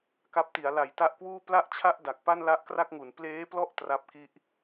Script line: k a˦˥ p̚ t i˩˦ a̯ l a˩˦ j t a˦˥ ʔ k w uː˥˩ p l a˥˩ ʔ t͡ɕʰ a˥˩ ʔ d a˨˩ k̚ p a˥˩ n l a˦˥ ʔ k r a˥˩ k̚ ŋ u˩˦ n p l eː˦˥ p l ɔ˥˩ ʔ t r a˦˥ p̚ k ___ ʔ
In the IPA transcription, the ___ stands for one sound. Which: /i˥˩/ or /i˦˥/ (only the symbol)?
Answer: i˥˩